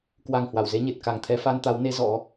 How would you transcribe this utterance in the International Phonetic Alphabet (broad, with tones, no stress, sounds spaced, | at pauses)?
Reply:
k w a˨˩ ŋ h w a˧˩ w z e˧ ɲ e˨˩ t̚ k a˨˩ ŋ t̪ʰ ɛ˧ f a˧ n t̪ a˨˦ w n e˨˦ z ɔ̰˧˥